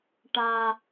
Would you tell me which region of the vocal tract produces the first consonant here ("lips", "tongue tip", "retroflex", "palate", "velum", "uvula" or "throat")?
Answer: retroflex